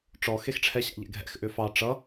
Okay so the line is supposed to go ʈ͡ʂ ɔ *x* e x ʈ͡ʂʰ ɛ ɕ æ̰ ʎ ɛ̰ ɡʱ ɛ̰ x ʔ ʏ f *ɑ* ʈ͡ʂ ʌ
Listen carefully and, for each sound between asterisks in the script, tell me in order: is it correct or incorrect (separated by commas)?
correct, correct